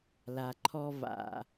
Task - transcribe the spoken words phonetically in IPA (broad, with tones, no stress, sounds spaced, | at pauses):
l a˩ ǃʰ ɔ˧ v a̰˩